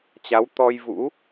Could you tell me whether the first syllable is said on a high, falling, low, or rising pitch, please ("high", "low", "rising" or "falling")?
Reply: rising